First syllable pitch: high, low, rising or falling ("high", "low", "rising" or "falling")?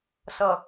low